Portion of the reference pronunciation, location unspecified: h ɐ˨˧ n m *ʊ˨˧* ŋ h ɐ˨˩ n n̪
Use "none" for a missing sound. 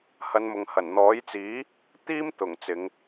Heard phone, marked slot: ʊ˨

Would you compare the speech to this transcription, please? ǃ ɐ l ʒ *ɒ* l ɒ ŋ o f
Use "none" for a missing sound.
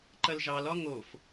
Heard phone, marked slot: ɑ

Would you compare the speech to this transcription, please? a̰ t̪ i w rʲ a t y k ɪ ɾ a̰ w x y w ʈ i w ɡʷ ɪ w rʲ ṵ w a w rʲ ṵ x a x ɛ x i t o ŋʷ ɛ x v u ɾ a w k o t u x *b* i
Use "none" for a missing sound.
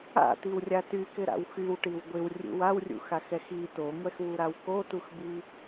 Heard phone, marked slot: b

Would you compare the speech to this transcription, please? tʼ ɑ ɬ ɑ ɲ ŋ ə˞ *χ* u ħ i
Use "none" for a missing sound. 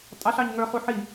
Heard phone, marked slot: χ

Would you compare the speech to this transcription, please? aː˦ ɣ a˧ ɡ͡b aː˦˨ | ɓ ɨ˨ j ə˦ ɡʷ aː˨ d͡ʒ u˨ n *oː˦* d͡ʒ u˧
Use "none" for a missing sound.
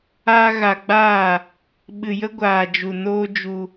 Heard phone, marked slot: oː˦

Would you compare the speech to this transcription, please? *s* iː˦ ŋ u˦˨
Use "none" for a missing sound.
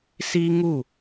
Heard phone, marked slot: s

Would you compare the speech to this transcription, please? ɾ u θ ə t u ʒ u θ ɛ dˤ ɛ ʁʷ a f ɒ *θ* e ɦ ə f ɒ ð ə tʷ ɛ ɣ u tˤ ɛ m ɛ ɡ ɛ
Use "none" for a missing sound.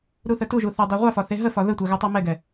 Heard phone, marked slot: θ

